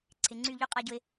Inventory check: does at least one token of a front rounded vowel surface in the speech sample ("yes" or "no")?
yes